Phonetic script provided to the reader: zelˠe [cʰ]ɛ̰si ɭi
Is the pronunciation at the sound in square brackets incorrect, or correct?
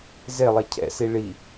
correct